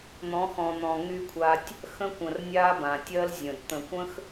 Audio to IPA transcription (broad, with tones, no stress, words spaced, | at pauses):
n̪ɔ̃˨˦xɔ̃˨n̪ɔ̃˨ ŋy˧kʷʰa˧tʲ | xə̃˦kʷə̃˨rnʲa˦ bã˨tʲɜ˦lzʲə̃˨d t̪ə̃˨kʷə̃˦x